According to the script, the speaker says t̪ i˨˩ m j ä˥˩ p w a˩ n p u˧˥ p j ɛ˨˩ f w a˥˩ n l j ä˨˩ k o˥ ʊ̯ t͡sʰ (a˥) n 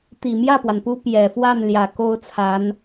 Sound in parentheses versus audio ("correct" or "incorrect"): incorrect